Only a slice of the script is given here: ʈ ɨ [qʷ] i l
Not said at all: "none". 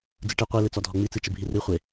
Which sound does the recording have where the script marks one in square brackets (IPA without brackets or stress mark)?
qʷ